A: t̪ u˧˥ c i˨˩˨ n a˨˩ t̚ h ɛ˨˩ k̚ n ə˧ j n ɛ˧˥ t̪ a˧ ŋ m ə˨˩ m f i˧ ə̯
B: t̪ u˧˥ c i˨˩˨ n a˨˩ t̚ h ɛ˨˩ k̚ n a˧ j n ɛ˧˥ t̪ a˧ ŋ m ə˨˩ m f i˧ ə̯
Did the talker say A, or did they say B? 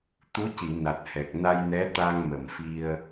B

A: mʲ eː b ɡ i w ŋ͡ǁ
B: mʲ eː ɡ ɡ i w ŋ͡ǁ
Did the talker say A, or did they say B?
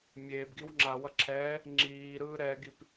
A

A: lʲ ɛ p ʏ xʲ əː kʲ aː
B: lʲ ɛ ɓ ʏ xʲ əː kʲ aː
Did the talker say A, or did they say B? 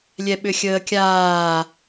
B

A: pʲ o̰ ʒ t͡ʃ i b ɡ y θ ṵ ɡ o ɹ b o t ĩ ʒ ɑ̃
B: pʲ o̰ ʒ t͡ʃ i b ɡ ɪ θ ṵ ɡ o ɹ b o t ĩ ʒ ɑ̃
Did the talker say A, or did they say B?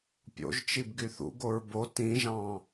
A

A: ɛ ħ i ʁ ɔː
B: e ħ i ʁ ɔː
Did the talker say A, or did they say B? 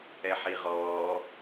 A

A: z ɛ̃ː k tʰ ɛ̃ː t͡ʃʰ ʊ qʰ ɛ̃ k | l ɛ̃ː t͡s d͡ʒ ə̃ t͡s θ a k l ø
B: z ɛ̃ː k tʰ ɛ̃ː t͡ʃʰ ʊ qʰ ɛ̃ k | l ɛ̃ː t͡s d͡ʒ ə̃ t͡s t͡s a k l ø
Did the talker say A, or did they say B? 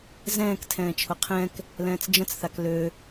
A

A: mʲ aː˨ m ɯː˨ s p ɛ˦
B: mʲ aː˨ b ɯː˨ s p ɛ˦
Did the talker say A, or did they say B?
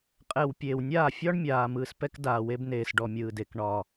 A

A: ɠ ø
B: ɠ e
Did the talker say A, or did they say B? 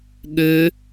A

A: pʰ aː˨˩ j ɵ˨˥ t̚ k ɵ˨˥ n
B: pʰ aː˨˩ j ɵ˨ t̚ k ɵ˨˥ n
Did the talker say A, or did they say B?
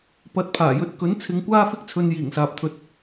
A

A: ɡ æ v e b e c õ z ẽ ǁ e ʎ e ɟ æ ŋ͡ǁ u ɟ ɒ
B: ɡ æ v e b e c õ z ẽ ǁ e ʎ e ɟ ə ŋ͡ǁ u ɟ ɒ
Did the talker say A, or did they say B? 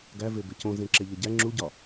A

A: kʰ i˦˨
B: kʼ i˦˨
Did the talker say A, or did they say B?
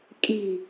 B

